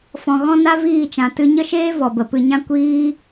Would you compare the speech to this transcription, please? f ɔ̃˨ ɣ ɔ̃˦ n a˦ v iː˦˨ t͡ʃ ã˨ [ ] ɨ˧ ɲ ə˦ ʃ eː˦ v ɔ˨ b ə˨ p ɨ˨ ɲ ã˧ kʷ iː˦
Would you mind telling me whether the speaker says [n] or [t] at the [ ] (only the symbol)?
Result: t